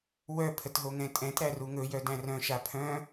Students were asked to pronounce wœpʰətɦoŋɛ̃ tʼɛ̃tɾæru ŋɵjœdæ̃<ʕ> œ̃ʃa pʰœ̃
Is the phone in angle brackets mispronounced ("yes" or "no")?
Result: yes